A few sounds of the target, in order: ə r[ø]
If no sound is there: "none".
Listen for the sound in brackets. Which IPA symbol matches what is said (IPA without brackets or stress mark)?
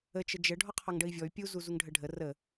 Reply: ə